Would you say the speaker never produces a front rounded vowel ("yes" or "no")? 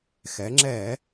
yes